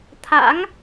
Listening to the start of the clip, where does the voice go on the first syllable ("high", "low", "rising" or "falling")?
rising